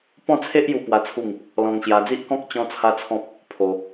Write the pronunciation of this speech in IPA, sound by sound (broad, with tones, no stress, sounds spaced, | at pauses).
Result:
p ɔ̃˥˧ t͡sʰ e˦ ʔ j u˧ p w a˦ t͡sʰ u˥˧ ŋ | l ɔ̃˧ ŋ ɕ j a˧ d͡z i˦ ʔ k ɔ̃˦ k̚ t͡ɕ ɔ̃˦ t͡sʰ a˦ t͡sʰ ɔ̃˦ p̚ | pʰ o˧